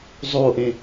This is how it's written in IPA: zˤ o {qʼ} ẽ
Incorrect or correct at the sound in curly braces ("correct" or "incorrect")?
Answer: incorrect